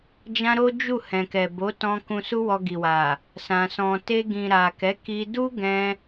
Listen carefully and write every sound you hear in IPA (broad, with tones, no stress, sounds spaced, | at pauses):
d͡ʒ ã˦ ɾ o˦ d͡ʒ u˦˨ h ɛ̃˨ k ɛ˨ b o˨˦ t ɔ̃˧ k ũ˧ s u˦ w ɔ˧ ɡ i˨ w a˨ | s ã˨ s ɔ̃˨ t e˧ ɡ ĩ˨ ɾ a˨ k ɛ˨˦ k i˧ d u˦ ɡ ɛ̃˧